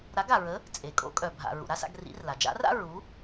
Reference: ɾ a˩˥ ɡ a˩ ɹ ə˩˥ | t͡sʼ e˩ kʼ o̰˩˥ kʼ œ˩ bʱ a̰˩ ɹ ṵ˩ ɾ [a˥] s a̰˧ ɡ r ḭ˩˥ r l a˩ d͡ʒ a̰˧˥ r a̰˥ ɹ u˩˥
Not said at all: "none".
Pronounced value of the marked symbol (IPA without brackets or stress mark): a˥